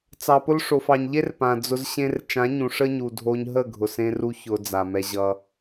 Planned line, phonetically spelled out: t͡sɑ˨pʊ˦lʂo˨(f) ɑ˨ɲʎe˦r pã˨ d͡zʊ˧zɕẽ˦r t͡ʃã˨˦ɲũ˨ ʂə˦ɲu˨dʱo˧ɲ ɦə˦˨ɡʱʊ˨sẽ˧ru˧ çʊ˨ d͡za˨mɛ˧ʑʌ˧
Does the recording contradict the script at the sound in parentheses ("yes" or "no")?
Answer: no